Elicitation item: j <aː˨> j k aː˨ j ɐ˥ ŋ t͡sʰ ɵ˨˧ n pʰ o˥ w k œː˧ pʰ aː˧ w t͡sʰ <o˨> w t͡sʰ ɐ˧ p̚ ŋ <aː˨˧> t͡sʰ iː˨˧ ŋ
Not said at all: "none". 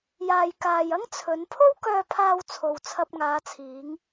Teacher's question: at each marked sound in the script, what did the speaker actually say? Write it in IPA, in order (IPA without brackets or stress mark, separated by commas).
aː˨, o˨, aː˨˧